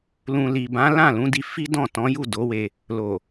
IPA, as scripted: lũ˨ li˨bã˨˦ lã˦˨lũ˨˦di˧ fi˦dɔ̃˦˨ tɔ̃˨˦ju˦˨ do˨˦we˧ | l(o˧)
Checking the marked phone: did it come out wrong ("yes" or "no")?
yes